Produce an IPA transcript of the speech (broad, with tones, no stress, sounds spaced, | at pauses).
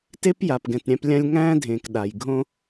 t e˥ p j a˨ p ɡ ɛ̃˨ t ɾʲ æ̃˦ p lʲ ã˦ lʲ ŋ æ̃ː˥ dʱ ẽː˨ k ɗ a˩ j ɡʱ õ˥